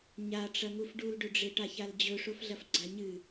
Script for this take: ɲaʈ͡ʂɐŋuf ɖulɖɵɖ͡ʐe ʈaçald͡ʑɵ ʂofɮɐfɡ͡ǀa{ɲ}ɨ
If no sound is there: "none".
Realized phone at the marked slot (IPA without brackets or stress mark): ɲ